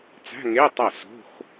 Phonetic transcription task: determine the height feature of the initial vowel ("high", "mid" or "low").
low